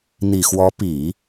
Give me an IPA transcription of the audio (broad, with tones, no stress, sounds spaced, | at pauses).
n̪ i˨˩ x w ɔ˧˥ p i˨˩˦